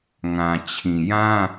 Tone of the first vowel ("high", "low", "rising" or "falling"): low